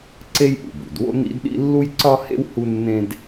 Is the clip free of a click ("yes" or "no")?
no